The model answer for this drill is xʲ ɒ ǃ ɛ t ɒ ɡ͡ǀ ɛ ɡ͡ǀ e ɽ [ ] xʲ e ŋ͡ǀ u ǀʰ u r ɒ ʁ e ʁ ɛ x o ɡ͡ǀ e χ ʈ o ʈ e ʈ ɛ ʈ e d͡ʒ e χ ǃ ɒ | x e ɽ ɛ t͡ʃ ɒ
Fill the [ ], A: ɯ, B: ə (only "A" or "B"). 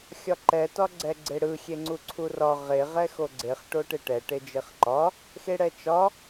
A